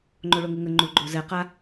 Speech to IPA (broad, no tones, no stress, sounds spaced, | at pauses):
ŋ͡ǃ o ɭ o ŋ u ŋ ə ŋ͡ǃ u ɡ͡ǃ o z ɛ q a